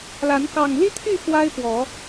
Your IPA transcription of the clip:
l a˨˦ n k ɑ˨˩ ŋ l i˦ t̪ʰ y˥˨ x w a˦ ɪ̯ p w ɔ˨˦

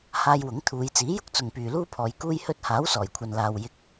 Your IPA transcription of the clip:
h aː˧ j w ʊ˨˥ ŋ t̪ʰ uː˨˧ j t͡s iː˨˥ j ʊ˥ k̚ t͡s ʊ˨ ŋ p yː˨ l uː˥ pʰ ɔː˨˧ j k uː˧ j h ɵ˧ t̚ h aː˨˥ w s ɔː˨˩ j kʷʰ ɐ˨ n l aː˨ w j ɪ˨ k̚

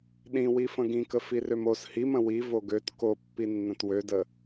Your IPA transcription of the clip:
ɗ ĩ w i f ə̃ ɡ ĩ k ə f i r ø m o s h i m ə̃ w i v o ɡ ø t k o pː i nː ə̃ t w ø d ə

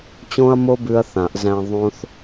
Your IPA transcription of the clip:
t͡ɕ õ˦ ɐ̯ m o˦ b ʉ˦ ɐ̯ θ ã˨˩˦ ʔ z æ̃˦ ðˤ õ˦ θ

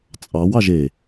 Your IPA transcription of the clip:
t͡sʼ ɑ w ɑ ʒ e

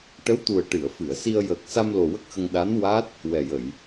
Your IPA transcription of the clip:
ʈ ə˧˥ w t̪ u˨˩ ə̯ ʈ ɨ˨˩˨ ə̯ f ɨ˨˩˨ ə̯ s i˧ ə̯ j əː˨˩ k̚ s a˧ m l o˨˩ w ə˦˥ k̚ x ə˧ ŋ ɗ a˧˥ n w a˦˥ t̚ | w ɛ˨˩ j ə˨˩˨ j

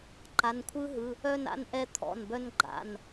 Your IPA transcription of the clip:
ǃ a˩˧˩ n kʷʰ ɯ˦˥ ɦ ɯ˩˧˩ | œ˥˧ n a̰˦˥ n ʔ ɛ˦˥ t̪ʰ ɔ̰˩˧˩ n b œ˦˥ n ɡ͡ǃ a̰˩˧˩ n

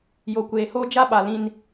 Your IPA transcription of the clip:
j o˨ kʷ eː˨ h oː˦ d͡ʒ a˦ ɓ a˨ l ĩ˦ n

